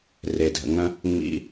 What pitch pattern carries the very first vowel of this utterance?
low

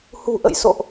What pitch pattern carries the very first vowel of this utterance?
low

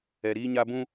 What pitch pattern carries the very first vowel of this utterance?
low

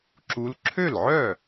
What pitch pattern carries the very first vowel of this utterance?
rising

